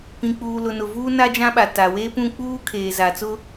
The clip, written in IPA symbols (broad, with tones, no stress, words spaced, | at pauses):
pĩ˨k͡puː˨lʊ˨nʊ˨ vuː˦na˦d͡ʒã˦ɓa˨ ta˨we˦pũ˦k͡puː˦ kʰeː˨za˨t͡sʊ˦